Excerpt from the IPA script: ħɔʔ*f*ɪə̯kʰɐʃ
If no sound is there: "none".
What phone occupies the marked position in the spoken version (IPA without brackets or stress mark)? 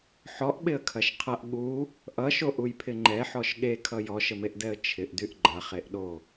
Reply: ɓ